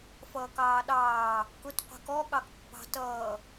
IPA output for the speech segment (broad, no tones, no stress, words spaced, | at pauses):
fʌːkɑːɗɑː | kʊt qʷɛ̤kɔ ɠɑkpːɑ̤ tʌː